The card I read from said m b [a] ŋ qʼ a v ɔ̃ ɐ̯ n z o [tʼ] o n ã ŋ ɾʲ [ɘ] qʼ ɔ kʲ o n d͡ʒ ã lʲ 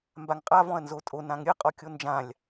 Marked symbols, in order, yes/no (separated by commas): yes, yes, yes